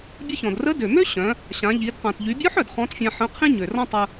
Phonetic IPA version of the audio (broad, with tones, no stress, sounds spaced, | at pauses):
bʲ ə˧ ç ɔ̃˩ d r ə˧˥ d ø˩ m ø˥ ɕ œ̃˩˧ | ɕ ã˩˧ ʎ i˩˧ d q ã˩ t ʎ y˩˧ bʲ ɔ˧˥ ħ œ˩ d χ ɔ̃˧˥ t fʲ ã˧ ħ ə̃˧˥ qʰ ĩ˥ ɲ ø˩ r ɔ̃˥ tˤ ə˧